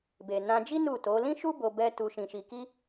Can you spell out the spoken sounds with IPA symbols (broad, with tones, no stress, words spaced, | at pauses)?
be˨nã˧d͡ʒi˦ nu˦˨ to˨˦ lĩ˦ʃu˦bo˧ bɛ˦ tu˧ʃĩ˧ʃi˧ki˦